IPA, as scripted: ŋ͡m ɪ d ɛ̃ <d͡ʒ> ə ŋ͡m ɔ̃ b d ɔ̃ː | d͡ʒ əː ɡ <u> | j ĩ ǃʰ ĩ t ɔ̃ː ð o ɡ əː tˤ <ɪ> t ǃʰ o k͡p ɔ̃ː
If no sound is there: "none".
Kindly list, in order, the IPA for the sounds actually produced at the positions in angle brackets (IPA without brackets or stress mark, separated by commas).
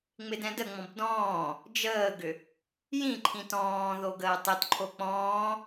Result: d, ʏ, ɪ